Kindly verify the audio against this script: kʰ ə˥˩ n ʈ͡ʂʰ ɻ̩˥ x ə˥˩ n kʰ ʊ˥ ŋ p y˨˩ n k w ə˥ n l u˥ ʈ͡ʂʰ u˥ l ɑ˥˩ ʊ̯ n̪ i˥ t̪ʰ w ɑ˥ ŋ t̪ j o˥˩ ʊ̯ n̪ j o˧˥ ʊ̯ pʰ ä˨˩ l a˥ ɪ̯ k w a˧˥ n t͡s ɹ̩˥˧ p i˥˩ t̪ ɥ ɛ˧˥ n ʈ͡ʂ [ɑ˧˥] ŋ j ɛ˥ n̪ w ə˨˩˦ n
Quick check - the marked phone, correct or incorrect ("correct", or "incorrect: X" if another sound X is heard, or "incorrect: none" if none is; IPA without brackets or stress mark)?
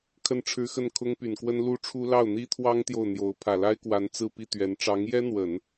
correct